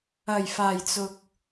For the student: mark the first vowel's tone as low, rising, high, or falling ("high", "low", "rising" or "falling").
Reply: low